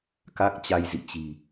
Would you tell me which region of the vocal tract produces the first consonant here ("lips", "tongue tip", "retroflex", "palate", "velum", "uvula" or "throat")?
velum